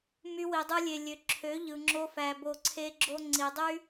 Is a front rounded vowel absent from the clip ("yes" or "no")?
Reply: no